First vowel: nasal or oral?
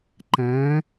nasal